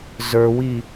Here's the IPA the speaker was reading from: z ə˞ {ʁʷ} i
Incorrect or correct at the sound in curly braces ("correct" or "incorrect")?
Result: incorrect